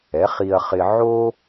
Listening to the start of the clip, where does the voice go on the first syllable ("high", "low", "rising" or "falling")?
rising